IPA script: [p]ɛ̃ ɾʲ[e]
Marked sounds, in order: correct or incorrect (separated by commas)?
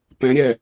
correct, incorrect